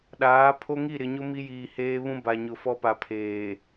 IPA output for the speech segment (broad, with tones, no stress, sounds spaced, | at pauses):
ɗ aː˨˦ pʰ o˦ ŋ i˦˨ ɾ ɪ˨ ɲ ʊ˦ m i˦ j iː˨ h eː˦ β ũ˦ b a˨ ɲ ʊ˨ f ɔ˦ p a˨ pʰ eː˨